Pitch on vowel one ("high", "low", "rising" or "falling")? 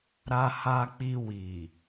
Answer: low